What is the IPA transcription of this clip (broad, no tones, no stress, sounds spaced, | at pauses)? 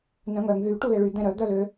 n œ̃ ŋ œ ŋ ð y ʈ u l e ɭ y d̪ ɛ̃ ɾ œ d̪ œ l ø